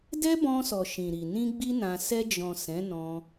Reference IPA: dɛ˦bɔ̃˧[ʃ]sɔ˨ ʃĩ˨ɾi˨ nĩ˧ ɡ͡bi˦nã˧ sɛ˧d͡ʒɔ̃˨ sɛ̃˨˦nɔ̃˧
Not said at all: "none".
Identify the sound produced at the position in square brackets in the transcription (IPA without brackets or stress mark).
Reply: none